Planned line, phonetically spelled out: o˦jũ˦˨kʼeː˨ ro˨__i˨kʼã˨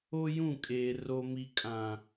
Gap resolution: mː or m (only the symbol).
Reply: m